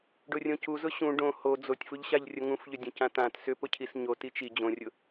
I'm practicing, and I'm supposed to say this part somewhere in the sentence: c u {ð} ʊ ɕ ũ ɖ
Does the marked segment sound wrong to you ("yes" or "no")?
yes